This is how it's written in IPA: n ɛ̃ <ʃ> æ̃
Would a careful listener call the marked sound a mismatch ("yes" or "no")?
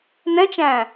yes